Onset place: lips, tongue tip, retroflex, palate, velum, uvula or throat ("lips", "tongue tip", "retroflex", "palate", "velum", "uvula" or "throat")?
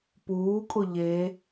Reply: lips